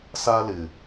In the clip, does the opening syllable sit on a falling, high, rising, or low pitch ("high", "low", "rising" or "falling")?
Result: high